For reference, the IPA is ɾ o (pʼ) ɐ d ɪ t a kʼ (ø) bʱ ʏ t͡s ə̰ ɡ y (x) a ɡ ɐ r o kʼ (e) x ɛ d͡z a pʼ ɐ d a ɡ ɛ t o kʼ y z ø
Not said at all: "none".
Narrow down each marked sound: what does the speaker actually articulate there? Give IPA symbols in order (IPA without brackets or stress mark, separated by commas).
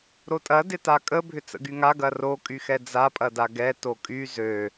tʼ, ə, ŋ, y